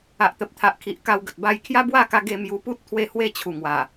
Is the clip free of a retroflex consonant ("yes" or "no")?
yes